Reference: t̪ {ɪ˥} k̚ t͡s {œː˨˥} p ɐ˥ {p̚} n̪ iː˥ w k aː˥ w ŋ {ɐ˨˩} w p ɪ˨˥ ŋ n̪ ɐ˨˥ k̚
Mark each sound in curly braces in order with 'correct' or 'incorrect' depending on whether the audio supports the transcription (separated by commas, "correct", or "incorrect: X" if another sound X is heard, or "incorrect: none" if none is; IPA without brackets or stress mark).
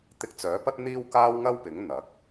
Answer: incorrect: ɪ˧, correct, incorrect: t̚, incorrect: ɐ˥